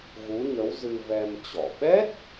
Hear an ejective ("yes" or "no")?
no